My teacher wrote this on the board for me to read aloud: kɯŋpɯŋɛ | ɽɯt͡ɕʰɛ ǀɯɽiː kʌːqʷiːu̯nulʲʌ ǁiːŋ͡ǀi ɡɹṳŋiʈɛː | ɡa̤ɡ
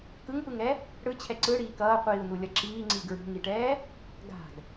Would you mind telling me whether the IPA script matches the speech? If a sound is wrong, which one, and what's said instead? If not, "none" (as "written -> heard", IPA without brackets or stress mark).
none